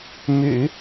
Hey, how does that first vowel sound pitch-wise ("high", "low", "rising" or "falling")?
low